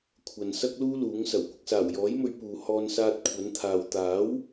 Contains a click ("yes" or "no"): no